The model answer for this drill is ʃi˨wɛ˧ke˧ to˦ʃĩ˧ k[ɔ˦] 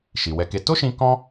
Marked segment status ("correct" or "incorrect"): incorrect